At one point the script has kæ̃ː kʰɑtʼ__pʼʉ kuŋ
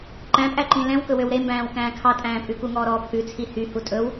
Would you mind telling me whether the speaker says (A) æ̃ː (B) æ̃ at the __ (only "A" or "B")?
A